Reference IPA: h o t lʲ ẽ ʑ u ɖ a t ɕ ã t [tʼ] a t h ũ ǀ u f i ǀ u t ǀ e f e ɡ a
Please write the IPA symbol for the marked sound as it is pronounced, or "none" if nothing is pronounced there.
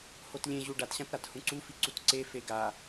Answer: ɾ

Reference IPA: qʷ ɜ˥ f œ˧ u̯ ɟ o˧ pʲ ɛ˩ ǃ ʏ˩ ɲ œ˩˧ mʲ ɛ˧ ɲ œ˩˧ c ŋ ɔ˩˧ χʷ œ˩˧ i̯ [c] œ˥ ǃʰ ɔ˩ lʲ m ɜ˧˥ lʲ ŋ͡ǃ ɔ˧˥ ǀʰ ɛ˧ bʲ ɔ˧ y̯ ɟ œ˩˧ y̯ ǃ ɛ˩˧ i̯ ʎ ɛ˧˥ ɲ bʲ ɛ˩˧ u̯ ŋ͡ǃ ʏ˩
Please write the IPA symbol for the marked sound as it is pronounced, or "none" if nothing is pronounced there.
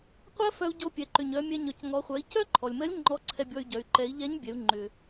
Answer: c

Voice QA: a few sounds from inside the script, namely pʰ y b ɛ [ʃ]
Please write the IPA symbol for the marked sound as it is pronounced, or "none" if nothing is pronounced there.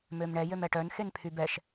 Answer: ʃ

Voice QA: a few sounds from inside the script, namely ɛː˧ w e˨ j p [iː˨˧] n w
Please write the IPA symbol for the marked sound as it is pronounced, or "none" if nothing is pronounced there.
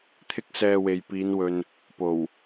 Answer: iː˨˧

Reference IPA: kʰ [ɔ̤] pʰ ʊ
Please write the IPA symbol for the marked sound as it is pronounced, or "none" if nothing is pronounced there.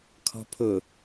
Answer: ɔ̤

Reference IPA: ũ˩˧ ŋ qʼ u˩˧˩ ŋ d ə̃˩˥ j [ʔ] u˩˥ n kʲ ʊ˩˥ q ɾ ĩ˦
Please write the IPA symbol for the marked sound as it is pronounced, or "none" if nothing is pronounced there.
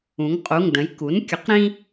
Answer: k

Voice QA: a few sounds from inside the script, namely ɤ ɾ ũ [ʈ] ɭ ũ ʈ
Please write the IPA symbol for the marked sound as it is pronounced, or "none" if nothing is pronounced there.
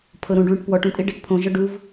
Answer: ɖ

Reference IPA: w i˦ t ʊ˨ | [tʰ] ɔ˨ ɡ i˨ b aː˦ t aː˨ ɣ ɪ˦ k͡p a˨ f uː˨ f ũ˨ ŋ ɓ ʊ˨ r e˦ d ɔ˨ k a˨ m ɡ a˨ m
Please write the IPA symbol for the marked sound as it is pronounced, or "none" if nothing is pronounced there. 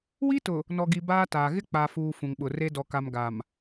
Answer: n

